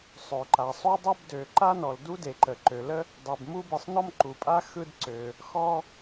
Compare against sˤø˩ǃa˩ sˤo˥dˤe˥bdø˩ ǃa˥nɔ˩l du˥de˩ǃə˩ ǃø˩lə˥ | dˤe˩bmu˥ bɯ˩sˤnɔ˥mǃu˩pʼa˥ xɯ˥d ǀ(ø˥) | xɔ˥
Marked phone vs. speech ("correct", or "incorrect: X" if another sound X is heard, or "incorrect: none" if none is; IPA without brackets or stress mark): incorrect: ø˩